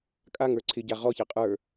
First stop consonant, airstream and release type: ejective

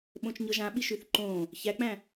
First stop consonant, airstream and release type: implosive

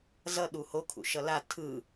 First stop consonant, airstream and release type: implosive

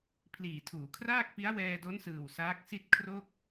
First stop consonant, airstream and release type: aspirated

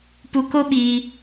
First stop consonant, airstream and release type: plain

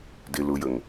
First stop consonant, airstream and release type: plain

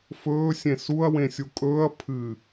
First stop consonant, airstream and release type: ejective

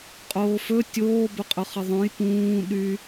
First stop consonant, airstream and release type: ejective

